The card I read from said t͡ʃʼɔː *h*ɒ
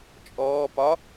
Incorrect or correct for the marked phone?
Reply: incorrect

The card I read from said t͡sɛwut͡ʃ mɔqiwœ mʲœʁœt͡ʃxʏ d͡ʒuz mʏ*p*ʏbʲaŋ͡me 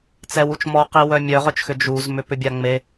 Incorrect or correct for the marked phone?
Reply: correct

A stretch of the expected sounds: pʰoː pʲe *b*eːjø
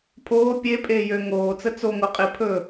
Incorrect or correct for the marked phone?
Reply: incorrect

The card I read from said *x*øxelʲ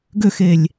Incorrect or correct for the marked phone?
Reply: incorrect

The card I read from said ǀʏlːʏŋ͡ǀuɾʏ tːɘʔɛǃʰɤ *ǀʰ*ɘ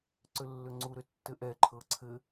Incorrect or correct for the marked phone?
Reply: correct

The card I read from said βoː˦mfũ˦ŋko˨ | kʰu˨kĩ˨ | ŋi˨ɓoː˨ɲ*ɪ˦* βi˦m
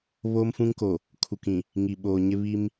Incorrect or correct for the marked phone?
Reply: correct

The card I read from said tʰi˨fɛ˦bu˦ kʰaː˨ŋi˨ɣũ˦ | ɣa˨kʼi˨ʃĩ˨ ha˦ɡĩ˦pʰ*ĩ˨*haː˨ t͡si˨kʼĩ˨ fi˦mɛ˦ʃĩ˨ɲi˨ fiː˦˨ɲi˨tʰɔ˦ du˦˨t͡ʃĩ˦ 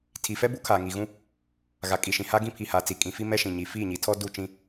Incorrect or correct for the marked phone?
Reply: incorrect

